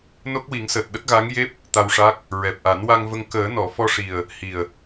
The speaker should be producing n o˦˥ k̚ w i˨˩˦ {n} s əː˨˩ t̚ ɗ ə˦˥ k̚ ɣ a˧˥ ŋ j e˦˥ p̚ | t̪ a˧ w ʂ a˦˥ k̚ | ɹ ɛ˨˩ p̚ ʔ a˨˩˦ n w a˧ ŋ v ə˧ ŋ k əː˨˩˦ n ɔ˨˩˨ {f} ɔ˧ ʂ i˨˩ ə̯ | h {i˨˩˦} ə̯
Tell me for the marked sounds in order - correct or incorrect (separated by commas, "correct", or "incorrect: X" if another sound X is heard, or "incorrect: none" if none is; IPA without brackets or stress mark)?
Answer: incorrect: ŋ, correct, incorrect: i˨˩